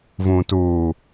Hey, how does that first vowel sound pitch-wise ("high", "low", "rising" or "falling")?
low